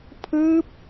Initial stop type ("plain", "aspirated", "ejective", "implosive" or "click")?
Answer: aspirated